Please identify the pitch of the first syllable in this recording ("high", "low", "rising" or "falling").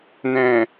low